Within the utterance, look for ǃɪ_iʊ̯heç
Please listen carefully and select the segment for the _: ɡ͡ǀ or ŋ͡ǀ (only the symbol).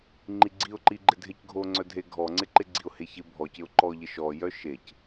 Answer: ɡ͡ǀ